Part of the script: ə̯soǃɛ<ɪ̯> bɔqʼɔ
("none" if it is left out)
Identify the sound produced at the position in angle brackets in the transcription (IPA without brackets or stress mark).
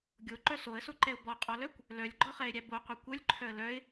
ʊ̯